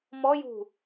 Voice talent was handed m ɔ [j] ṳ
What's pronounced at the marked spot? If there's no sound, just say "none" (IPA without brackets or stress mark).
j